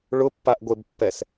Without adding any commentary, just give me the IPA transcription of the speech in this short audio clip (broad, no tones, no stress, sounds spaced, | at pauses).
ɭ ʊ pː a ʔ ɡʷ e b pː ɛ s